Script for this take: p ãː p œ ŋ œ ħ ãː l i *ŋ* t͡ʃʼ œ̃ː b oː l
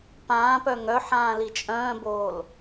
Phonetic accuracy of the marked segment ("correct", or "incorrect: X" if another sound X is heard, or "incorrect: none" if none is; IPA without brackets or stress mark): incorrect: none